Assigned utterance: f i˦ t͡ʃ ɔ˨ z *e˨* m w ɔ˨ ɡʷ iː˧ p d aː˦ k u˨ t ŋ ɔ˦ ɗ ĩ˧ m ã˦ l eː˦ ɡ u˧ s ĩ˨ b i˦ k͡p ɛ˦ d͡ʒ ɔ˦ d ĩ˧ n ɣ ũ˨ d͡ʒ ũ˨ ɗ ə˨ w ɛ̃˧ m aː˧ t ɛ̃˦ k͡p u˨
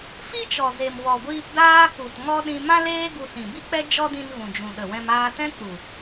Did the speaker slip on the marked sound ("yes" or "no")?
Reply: no